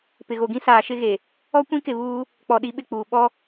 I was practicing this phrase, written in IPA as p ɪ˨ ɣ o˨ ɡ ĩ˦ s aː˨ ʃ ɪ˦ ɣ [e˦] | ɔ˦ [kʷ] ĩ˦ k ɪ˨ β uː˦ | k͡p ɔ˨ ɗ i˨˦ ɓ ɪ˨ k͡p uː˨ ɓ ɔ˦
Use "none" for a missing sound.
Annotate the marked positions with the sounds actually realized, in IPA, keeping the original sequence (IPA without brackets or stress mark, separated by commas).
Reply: e˨, kʷ